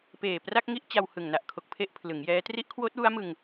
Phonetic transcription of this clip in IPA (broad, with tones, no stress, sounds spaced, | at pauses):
p eː˨˩ p r a˥˩ k̚ ŋ i˦˥ ʔ t͡ɕ a˧ w h ɯ˨˩ ŋ n a˨˩ ʔ kʰ o˨˩ k̚ pʰ e˥˩ ʔ pʰ l ɯ˩˦ ŋ j ɛː˦˥ t r i˦˥ ʔ kʰ w oː˦˥ t̚ w u˦˥ a̯ m ɯ˧ ŋ